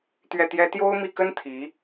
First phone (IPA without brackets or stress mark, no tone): t̪